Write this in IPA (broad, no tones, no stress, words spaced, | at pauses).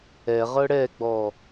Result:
ɛʁɤ ɽɛɡ͡bɔ